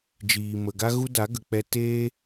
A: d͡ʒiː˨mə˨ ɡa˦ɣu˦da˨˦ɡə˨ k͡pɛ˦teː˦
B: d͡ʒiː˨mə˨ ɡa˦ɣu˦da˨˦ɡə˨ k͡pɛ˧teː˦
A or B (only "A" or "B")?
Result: B